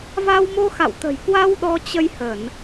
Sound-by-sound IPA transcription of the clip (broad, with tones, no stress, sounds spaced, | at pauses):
v a˧ w m o˧ x a̰˧˨ w t̪ ə̤˨˩ j k w a˧ w ɗ ɔ˧ t͡ɕ ə˧ j h ə˧˩˨ n